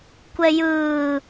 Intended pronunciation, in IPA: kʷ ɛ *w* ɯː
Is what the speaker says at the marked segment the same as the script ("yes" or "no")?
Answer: no